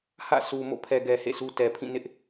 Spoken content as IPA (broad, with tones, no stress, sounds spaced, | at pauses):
h ä̰˦˨ s u˨ m o̰˦˨ pʰ ɛ˨ ɡ ɛ˨ h ḛ˦˨ s u˦ t ɛ˨ pʰ ĩ˦˨ n ɪ˦ ʔ